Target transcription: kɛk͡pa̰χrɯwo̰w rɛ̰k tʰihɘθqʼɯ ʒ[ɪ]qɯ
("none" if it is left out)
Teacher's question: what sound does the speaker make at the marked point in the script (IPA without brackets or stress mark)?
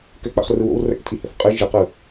ɪ